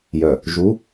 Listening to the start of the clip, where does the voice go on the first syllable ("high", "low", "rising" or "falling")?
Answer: low